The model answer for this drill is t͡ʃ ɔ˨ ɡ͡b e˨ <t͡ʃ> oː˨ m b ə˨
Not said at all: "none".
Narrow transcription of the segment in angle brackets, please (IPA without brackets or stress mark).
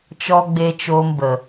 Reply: t͡ʃ